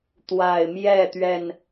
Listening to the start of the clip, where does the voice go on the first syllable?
low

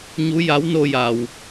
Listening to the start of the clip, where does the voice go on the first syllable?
rising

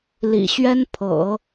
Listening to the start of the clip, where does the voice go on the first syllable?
low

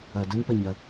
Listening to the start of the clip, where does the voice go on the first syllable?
low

